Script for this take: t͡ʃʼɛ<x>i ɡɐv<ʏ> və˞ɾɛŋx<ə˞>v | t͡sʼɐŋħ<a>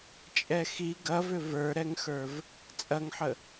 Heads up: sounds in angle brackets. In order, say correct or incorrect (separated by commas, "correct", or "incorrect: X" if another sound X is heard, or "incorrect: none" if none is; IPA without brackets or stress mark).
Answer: correct, correct, correct, incorrect: ə